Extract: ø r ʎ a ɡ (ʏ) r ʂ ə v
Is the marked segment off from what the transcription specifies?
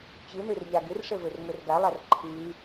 no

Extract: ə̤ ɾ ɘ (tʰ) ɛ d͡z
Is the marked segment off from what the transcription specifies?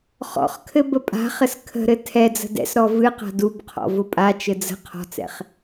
no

